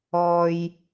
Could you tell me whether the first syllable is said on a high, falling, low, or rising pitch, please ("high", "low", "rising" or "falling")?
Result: low